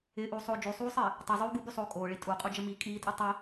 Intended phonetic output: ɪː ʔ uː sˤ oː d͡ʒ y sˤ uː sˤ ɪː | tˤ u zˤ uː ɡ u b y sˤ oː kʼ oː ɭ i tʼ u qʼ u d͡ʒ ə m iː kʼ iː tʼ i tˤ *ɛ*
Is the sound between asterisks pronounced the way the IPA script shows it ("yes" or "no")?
no